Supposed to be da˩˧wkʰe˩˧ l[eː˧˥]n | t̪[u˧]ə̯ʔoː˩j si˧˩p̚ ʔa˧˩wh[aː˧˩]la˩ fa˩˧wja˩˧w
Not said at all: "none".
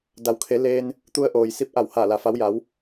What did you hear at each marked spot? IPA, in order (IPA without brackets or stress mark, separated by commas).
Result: eː˧, u˧, aː˧˩